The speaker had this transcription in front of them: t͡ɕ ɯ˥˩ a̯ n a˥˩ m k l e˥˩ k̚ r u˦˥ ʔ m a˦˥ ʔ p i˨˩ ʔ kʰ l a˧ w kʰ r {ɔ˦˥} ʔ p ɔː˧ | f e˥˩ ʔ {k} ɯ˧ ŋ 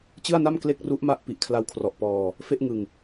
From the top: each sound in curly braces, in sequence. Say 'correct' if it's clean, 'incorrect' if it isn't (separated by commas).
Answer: incorrect, incorrect